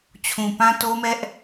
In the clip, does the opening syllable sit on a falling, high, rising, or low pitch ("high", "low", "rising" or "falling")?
low